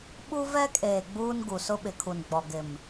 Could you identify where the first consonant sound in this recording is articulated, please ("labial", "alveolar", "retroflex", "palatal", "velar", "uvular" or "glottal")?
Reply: labial